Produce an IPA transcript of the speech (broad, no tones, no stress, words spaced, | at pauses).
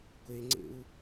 ɡʷeŋ͡ǀḛu̯